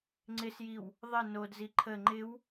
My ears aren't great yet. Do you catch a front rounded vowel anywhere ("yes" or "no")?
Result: no